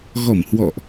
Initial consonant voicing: voiced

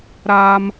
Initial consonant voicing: voiced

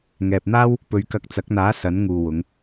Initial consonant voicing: voiced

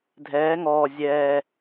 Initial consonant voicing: voiced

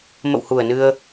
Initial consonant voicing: voiced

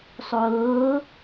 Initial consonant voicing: voiceless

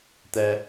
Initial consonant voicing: voiceless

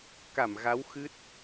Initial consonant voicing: voiceless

